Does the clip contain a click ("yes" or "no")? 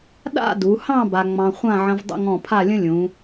no